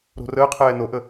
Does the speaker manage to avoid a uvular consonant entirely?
no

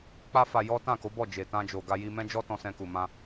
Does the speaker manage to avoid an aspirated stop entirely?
yes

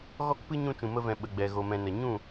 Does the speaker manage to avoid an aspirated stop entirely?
yes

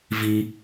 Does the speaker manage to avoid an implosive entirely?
yes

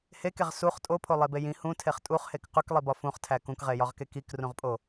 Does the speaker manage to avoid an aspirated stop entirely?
no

